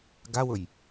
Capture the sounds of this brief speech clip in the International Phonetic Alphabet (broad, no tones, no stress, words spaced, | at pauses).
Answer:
ɡawʊj